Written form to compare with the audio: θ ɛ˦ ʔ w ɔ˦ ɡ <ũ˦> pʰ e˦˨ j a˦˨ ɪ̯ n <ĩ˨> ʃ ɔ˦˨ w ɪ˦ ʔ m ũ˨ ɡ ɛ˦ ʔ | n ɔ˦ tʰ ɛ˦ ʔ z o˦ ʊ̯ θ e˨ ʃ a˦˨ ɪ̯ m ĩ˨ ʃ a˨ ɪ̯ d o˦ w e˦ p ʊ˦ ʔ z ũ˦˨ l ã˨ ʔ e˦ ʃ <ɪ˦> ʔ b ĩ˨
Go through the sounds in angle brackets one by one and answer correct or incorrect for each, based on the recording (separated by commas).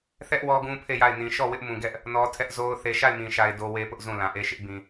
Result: correct, correct, correct